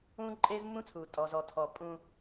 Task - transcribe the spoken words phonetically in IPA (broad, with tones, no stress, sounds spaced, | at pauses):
ũː˦ ǃʼ eː˦ z mː ũ˦ t͡sʰ uː˨ tʼ ɔ˨ z ɔ˨ tʰ ɔ˨ pʼ ũ˦